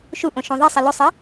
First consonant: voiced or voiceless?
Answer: voiceless